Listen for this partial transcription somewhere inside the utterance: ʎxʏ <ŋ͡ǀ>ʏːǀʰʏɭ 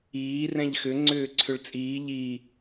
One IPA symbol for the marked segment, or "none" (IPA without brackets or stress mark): ŋ͡ǀ